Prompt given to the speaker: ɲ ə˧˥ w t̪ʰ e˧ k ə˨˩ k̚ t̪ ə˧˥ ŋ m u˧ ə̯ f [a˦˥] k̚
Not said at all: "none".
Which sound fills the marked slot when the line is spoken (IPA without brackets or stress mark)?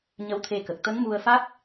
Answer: a˦˥